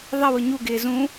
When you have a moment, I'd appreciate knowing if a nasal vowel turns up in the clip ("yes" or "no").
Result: yes